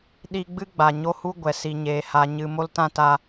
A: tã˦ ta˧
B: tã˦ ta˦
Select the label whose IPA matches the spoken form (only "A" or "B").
A